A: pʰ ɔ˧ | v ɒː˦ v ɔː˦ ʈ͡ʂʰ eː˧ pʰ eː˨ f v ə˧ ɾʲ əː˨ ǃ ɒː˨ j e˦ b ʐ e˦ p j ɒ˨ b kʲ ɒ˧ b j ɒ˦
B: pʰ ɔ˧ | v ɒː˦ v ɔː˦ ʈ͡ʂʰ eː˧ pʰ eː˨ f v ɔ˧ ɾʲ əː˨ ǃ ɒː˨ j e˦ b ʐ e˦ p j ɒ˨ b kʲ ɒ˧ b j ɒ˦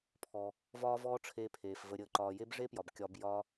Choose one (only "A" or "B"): A